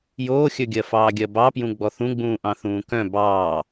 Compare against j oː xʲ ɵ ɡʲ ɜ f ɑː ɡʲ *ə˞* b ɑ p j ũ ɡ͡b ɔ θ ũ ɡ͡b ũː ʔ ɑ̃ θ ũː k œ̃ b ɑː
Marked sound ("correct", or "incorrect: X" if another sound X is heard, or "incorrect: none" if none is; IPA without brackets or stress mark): incorrect: ɜ